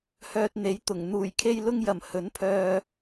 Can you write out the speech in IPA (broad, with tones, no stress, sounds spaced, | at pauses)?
h œː˧ t̚ n̪ e˨˥ j t̪ ʊ˨˩ ŋ n̪ uː˨˩ j kʰ e˥ j l ʊ˥ ŋ j ɐ˨˩ m h ɵ˨˥ n pʰ œː˧